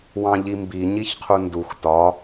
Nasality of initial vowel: nasal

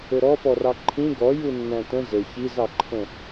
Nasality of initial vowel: oral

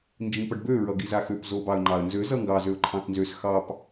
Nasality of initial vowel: nasal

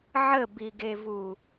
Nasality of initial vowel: oral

